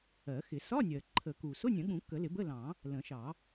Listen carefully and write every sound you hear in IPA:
ɜ˨˩˦xɪ˨˩˦ sɒ˧˥˧nʲɜ˩ ǃʰə˨˩˦ku˩ sʊ˧˥˧nʲə̃˨˩˦ɠũ˨˩˦ kə˨˩˦lɪ˨˩˦ bə˧˥˧lɑ̃˨˩˦ | lə̃˨˩˦ʃɑ˨˩˦

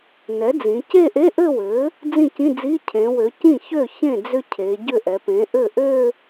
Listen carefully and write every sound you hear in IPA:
nɛ˩˥d͡zĩ˩˧ ce˥˧ʔe˧˥˧ʔɘ˥˧wɘ˩˥ | d͡zĩ˥˩cĩ˧˥˧d͡zi˧˥˧ cʰẽ˩˧wø˩˧ cĩ˥˩çø˥˩çẽ˥˩ d͡zʏ˥˧cʰe˩˧ ɟʏ˥˩ʔɛ˩˧pẽ˩˥ ʔɘ˥˩ ʔø˥˧

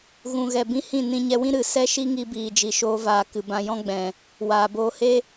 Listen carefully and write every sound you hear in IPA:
ɣũ˨ɣɛ˨bĩ˧ hĩ˦˨ nĩ˧ɲɛ˧wĩ˦ ɾɨ˨ sɛ˦ʃi˦ŋi˧biː˨ d͡ʒi˨ʃoː˧vaː˨ kɨ˨bã˧jɔ̃˦ ɡ͡bɛ̃˨ | waː˨boː˧he˦

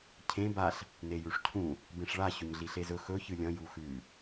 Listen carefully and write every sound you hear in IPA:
cʰẽ baɬ | nejʉʂcʰũ | bẽʂɭa ɕɵɲɮiɬezɵ xɵ çɨlʲɐ̃ juxʉ

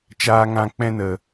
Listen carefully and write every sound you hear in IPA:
t͡ʃaː˧ŋã˧ k͡pɛ̃˧nə˨

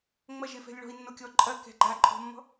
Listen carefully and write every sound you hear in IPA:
ŋ͡mɐʒefɛ̤lʲ ɭɔ̤i̯nːokʲɔ ǃʼɐkɛ̤ ɡ͡ǃaǃʼɔ̤mːɔ̤

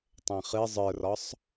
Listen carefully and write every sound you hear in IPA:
tˤɛ̃χɨ zˤə˞rɒsˤ

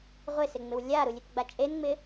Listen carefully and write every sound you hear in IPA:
ʁʷɪsɪŋ͡mɪw lʲaɾulʲɪtɡ͡ba t͡ʃʼenŋ͡mɪ

